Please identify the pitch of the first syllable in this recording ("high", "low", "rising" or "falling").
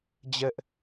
high